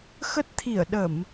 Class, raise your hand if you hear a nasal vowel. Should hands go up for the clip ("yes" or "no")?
no